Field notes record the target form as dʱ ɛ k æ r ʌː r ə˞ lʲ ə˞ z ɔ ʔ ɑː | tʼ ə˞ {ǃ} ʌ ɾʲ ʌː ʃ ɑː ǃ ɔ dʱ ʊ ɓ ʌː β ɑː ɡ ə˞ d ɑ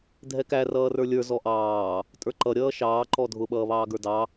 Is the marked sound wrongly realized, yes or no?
no